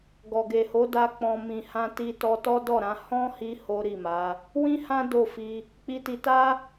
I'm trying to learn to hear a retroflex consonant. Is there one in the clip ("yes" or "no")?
no